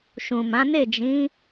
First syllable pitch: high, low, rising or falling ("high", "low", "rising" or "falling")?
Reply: low